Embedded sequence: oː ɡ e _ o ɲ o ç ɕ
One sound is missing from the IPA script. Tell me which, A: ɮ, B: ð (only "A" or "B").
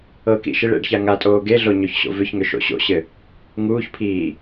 A